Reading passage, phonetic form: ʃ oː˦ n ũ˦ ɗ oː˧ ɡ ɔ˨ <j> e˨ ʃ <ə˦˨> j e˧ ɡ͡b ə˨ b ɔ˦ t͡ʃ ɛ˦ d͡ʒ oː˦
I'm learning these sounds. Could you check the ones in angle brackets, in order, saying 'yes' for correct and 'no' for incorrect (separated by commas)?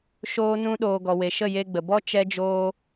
no, yes